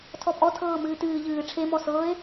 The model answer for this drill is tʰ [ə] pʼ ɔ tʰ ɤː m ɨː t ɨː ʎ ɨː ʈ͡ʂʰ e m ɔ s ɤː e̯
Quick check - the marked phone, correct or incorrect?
incorrect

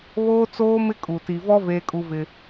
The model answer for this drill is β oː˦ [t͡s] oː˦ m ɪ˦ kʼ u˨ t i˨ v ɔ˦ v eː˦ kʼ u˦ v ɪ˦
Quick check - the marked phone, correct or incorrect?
correct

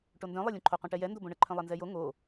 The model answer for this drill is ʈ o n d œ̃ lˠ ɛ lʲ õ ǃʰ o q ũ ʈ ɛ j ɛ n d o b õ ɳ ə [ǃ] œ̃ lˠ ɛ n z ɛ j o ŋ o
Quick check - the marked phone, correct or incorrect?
incorrect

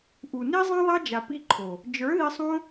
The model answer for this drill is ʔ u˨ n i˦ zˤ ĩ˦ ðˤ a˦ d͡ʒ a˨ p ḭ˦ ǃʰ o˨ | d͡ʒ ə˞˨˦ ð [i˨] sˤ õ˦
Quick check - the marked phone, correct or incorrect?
incorrect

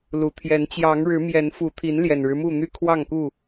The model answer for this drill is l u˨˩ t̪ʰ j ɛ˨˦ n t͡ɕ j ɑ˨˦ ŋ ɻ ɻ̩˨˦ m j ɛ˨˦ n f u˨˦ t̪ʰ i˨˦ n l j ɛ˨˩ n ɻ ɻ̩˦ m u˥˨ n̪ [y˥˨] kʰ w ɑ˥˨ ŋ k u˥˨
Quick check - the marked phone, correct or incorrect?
correct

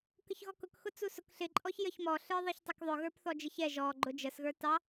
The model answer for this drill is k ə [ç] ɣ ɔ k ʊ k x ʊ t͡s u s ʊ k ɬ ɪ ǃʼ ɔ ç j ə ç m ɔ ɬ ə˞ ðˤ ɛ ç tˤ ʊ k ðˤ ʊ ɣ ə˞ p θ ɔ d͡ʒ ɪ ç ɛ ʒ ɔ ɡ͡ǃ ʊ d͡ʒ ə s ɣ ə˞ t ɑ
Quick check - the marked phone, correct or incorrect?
correct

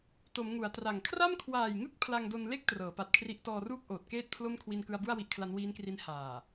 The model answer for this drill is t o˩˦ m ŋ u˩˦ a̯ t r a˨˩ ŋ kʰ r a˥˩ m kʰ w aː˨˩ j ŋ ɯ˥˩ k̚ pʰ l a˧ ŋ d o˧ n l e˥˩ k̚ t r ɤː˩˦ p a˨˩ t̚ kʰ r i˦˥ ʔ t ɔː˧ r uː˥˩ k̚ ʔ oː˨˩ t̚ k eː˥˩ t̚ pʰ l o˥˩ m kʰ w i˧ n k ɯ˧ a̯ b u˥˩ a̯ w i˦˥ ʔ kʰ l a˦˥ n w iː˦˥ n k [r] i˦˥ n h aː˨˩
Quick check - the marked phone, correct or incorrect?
correct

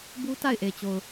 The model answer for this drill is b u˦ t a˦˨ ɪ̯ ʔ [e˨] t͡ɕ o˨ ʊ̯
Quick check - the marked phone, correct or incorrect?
correct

